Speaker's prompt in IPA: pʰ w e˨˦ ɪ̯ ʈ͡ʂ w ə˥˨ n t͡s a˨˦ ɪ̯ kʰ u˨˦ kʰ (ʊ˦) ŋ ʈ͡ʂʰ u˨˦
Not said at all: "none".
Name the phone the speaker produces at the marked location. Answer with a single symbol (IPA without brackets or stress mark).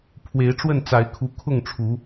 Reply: ʊ˥˨